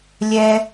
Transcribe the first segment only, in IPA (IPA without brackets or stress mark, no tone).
lʲ